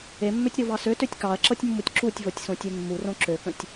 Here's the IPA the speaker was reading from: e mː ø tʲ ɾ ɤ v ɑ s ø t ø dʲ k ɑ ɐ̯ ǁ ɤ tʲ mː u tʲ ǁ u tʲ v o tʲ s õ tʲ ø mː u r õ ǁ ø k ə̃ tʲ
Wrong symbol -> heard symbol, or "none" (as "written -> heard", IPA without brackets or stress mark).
dʲ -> tʲ